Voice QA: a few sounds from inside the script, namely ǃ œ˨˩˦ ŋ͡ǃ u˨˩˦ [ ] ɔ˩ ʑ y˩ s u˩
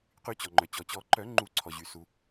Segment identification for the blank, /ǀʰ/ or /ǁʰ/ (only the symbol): ǀʰ